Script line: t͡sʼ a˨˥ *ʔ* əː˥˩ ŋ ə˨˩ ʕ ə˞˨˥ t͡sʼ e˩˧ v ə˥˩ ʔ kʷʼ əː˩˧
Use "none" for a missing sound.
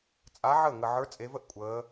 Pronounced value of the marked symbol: ʕ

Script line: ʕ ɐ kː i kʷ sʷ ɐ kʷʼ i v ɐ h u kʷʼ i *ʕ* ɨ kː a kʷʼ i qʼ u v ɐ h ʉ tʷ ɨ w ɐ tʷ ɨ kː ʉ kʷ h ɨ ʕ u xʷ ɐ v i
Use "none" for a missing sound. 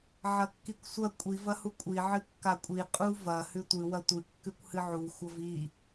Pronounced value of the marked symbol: ʕ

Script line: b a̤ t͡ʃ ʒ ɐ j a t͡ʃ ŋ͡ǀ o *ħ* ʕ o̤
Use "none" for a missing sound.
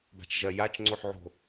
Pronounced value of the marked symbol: ħ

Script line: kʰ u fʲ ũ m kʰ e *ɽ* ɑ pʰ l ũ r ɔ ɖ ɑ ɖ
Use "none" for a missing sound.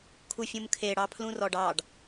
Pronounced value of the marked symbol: ɽ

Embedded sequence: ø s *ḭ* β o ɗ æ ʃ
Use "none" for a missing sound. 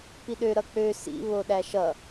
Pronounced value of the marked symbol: ḭ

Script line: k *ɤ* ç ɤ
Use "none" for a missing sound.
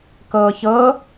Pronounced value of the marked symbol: ɤː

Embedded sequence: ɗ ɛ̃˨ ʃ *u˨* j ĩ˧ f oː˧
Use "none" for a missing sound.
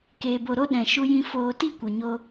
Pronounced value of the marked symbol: u˧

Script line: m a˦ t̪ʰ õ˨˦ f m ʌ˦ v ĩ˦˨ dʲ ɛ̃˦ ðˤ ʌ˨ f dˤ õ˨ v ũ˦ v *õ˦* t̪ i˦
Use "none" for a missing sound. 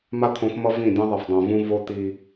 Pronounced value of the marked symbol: o˦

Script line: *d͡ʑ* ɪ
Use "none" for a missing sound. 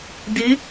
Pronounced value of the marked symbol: d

